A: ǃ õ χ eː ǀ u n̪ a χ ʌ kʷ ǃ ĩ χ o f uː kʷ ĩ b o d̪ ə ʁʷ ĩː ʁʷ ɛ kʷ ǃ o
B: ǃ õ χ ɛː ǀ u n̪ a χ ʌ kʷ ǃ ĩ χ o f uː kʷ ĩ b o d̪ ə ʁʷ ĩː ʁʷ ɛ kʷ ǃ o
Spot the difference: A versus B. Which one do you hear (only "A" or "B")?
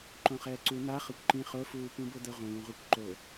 B